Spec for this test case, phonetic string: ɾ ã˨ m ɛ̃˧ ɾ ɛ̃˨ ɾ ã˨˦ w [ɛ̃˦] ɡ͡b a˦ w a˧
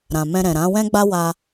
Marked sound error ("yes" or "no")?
no